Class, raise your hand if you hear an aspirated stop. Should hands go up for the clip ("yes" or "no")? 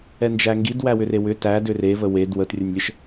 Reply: no